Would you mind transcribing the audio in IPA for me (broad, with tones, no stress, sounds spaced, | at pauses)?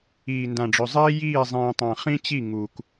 iː˨ n d ã˨ ɖ͡ʐ ɵ˨ zˤ iː˦ j iː˦˨ zˤ ĩː˨ tˤ ã˨ χ ĩ˦ t͡ɕ i˦˨ ŋ u˨ k